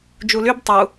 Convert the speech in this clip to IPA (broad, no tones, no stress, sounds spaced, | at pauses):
d͡ʒ u l y b tˤ u